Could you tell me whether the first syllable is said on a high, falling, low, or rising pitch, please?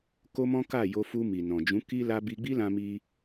high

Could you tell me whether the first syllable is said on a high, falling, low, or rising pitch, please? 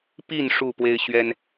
falling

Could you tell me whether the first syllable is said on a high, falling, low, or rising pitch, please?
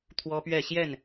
high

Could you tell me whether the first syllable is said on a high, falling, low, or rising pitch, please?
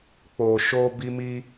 low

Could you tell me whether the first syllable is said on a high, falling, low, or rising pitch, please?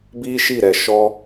high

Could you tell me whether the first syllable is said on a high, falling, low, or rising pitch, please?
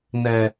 low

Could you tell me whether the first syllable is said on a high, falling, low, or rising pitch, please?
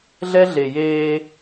high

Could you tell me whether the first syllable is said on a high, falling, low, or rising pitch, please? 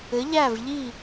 rising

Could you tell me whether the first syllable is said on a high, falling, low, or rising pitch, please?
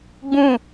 falling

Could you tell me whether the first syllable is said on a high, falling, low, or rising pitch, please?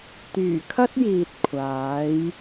low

